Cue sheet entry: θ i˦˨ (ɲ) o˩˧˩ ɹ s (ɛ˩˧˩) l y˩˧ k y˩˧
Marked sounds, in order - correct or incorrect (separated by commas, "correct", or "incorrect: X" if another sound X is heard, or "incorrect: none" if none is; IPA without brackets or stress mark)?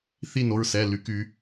incorrect: n, correct